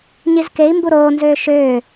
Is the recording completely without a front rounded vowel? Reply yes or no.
no